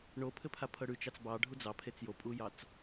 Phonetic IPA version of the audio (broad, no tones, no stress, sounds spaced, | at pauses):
ɳ o pʰ ɘ pʰ a pʰ ɤ ɽ ʉ t͡ʃ ɑ t͡s b ɑ ɖʱ u d͡z ɑ pʰ e t͡s j o pʼ u j ɑ t͡s